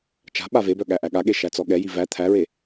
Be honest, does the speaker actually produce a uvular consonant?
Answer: no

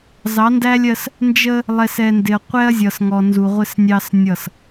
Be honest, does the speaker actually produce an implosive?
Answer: no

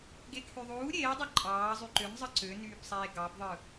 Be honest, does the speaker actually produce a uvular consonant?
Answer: no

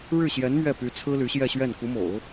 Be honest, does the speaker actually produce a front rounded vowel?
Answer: yes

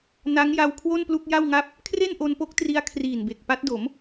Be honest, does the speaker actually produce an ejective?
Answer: no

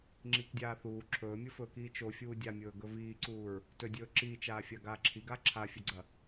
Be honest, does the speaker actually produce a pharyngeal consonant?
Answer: no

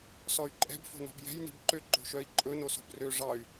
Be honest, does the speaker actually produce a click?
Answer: yes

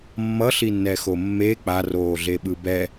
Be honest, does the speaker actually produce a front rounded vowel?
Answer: no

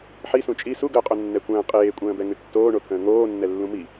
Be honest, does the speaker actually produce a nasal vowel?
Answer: yes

